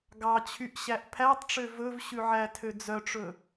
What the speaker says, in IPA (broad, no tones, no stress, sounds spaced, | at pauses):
ɡ ɑ t͡ɕʰ y ʔ ɕ æ ʔ pʰ æ tˤ ʈ͡ʂ ø v ɵ v ɕ ʉ ʕ æ tʰ ø d͡z œ ʈ͡ʂ ɵ